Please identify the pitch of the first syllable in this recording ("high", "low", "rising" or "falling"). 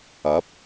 rising